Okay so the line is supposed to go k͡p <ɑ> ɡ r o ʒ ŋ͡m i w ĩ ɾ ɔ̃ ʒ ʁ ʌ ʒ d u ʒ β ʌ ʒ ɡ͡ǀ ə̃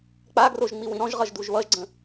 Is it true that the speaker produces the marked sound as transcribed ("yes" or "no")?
no